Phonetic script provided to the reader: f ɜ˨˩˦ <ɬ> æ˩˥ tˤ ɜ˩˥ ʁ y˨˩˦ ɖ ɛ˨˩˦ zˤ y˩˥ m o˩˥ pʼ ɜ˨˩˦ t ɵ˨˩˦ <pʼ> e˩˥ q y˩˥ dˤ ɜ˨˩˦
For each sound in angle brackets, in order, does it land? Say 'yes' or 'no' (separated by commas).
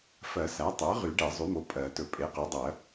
no, yes